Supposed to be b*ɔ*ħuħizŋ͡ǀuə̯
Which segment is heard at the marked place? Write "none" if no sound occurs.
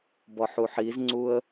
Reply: ɔ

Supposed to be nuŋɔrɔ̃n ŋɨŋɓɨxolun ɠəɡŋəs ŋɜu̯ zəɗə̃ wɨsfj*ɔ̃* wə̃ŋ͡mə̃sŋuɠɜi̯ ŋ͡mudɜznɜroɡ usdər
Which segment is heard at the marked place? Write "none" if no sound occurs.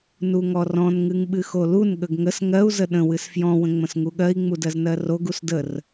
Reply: ɔ̃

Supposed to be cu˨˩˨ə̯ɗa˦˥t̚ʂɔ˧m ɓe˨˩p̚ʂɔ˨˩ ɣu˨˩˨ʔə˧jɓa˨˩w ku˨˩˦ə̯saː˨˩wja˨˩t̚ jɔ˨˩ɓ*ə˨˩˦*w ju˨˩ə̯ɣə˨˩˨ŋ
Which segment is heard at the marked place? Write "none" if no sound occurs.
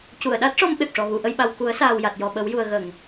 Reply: ə˨˩˦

